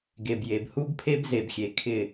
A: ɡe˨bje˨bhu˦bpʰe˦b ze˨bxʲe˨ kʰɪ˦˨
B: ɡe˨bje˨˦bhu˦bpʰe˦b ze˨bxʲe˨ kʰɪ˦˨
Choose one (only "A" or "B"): A